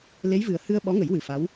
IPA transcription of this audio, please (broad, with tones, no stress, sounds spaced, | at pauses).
l e˧˥ j v ɨ˨˩ ə̯ h ɨ˧ ə̯ ɓ ɔ˧˥ ŋ ə˨˩˦ j w ɨ˨˩ f a˧˥ w